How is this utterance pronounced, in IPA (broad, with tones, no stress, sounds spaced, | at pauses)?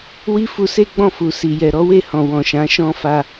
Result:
w i˦ f u˧ s e˦ ɡ͡b ɔ̃˦˨ f u˨ s i˨ j ɛ˨ ɾ ɔ˨˦ w e˦˨ h ɔ̃˨ w ɔ̃˨ ʃ ã˨˦ ʃ ɔ̃˦ f a˧